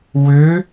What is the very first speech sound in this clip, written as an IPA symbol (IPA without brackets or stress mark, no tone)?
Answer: w